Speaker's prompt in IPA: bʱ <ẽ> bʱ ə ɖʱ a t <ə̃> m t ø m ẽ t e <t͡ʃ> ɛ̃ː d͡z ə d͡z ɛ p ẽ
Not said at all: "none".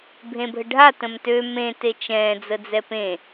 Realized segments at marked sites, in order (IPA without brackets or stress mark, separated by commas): ẽ, ə̃, t͡ʃ